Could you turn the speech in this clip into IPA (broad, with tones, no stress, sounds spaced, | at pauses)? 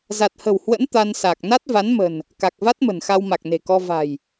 z a˨˩ t̚ h ə̤˨˩ w h w ə̰˧˥ n t̪ a˧ n s a˨˩ k̚ n a˦˥ t̚ v a˨˦ n m ə̤˨˩ n | k a˨˩ k̚ v a˦˥ t̚ m ə̤˨˩ n x a˧ w m a˨˩ k̚ n e̤˨˩ k ɔ˧ v a̤˨˩ j